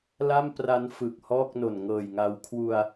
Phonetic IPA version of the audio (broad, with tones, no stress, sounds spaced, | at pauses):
l a˥˩ m p r a˦˥ n f ɯ˨˩ k̚ h ɔː˥˩ k̚ n o˨˩ n ŋ ɤː˨˩ j ŋ a˧ w kʰ w u˧ a̯